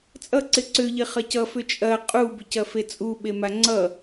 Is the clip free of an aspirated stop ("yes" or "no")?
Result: yes